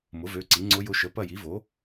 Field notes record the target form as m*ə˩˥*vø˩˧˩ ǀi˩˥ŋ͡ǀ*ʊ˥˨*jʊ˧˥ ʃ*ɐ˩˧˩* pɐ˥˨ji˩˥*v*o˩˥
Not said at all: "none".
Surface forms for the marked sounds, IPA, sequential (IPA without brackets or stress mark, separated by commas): ʊ˩˥, ʊ˧˥, ə˩˧˩, v